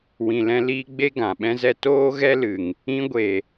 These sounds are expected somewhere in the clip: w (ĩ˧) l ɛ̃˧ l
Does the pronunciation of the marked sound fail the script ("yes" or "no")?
yes